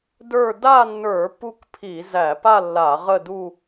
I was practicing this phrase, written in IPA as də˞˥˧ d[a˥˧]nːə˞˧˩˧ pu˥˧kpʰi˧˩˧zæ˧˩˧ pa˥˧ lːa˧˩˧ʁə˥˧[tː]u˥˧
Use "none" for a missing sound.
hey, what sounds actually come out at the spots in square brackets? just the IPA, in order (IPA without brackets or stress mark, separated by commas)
a˥˧, d